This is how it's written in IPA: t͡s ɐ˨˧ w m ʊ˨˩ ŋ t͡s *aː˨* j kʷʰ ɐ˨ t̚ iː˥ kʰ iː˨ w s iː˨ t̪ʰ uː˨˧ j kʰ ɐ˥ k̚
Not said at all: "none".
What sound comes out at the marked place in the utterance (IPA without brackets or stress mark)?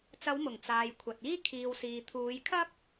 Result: aː˨